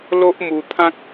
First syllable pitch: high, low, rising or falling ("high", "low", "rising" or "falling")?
high